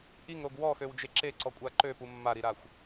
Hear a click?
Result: yes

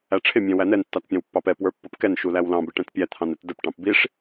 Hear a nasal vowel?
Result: yes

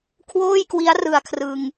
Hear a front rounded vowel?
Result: no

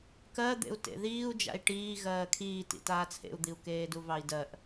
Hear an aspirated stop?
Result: yes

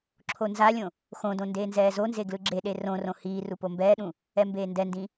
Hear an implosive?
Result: yes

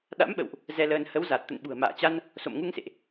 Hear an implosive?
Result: yes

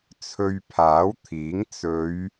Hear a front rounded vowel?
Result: no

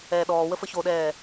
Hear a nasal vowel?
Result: no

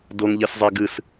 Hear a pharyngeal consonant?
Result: no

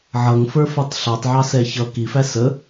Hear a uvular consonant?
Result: no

